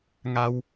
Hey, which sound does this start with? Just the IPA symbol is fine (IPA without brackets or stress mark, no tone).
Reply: ŋ